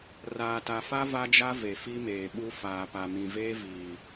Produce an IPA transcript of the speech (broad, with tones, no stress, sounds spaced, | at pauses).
r aː˨ t a˨ f a˦ v a˦ d͡ʒ a˦ v e˨ f i˦ m eː˨ ɓ u˦ f aː˨ p a˨ m ĩ˨ v eː˦ v iː˨